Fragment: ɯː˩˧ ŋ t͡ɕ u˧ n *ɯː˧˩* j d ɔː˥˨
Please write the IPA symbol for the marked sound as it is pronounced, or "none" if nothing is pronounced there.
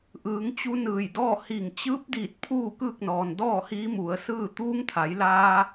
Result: ɯː˧˩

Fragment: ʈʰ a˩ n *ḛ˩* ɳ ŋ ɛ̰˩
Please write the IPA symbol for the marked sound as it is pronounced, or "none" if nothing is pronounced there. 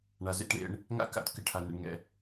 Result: ḛ˩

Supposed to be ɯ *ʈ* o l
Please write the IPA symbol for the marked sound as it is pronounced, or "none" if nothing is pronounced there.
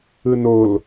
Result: n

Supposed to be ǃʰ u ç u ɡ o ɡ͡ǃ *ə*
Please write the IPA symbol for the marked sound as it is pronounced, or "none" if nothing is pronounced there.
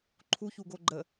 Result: ə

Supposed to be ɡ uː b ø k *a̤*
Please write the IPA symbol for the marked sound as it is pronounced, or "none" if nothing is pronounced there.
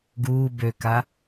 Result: a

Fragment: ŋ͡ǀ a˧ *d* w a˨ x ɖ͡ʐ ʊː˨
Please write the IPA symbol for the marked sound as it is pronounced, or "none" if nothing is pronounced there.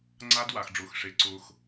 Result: d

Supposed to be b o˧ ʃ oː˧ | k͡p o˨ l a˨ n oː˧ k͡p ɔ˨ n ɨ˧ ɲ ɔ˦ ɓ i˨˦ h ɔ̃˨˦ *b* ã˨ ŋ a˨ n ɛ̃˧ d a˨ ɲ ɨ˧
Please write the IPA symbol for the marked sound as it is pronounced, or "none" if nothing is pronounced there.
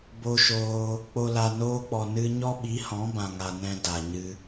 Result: b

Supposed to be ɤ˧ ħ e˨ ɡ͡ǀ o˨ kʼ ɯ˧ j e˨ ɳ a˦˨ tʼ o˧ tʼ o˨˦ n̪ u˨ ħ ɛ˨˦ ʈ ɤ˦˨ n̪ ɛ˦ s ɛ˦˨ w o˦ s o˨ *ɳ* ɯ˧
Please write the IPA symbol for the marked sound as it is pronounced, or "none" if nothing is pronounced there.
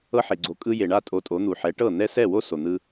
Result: n̪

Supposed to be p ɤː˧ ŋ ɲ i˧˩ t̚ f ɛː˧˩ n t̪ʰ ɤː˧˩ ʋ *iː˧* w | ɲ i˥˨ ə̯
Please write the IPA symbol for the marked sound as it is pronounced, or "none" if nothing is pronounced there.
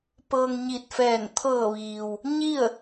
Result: iː˩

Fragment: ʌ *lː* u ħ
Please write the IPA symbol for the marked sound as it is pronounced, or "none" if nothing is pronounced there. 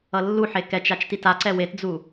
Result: lː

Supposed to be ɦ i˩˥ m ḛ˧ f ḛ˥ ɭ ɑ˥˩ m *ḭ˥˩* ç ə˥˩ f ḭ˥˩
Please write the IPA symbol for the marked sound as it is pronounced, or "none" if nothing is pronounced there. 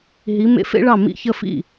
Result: ḭ˥˩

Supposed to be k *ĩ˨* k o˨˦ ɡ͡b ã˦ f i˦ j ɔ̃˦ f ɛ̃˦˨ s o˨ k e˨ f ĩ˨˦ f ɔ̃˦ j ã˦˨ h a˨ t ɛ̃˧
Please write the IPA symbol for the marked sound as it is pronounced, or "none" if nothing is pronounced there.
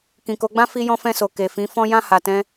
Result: ĩ˨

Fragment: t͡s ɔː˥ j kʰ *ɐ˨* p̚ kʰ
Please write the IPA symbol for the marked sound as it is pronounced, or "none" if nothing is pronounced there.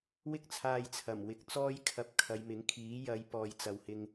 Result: ɐ˧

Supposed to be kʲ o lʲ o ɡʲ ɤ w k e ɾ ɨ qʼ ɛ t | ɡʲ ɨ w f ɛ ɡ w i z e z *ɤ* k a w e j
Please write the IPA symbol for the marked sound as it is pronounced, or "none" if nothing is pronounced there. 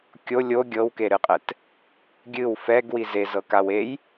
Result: ɤ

